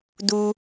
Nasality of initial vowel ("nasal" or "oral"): oral